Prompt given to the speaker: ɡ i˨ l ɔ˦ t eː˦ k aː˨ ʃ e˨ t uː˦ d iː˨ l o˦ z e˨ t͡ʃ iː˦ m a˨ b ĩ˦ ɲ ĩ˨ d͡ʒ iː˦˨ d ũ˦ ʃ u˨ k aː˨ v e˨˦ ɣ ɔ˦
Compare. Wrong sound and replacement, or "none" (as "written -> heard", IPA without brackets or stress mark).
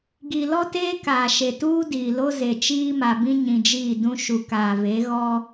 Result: none